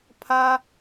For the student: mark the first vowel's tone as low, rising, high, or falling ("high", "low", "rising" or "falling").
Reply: high